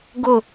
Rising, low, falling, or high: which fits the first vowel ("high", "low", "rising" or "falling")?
falling